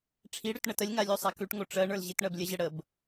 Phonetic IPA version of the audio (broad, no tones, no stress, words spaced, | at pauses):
ʈ͡ʂʰiɽʉt ɳətəlʲŋa lʲosˤakʉʈŋo ʈ͡ʂɜɳə˞l ʑitɳɜblʲəʑə ɽəb